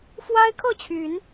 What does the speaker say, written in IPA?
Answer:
f w a˦ ɪ̯ kʰ ɤ˥˨ t͡ɕʰ y˨˦ n

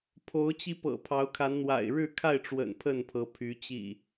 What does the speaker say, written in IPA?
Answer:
pʰ o˨˦ ʊ̯ t͡ɕ i˧ p ɤ̰˨˩ pʰ ɑ˨˦ ʊ̯ kʰ a˨˦ n n̪ w a̰˨˩ ɪ̯ ɻ ɻ̩˥˨ kʰ a˥˨ ɪ̯ ʈ͡ʂ w ə̰˨˩ n pʰ ə˥˨ n pʰ ɤ˨˦ pʰ y˨˦ t͡ɕ ḭ˨˩

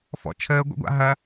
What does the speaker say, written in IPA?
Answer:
f ɔ̰ t͡ʃʰ əː ɡʷ ə̰ ɡʷ a̰ ɦ ɐ

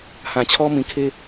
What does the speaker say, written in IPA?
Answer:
h ã˨ t͡ɕʰ ɔ˦ m ĩ˨ kʰ e˦

